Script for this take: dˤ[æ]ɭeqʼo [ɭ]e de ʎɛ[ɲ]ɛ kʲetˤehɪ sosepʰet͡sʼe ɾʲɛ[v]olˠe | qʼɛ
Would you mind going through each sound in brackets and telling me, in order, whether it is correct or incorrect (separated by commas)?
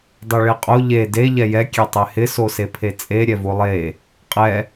incorrect, incorrect, incorrect, correct